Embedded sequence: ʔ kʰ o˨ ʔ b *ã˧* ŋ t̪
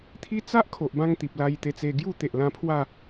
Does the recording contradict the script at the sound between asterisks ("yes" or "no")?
no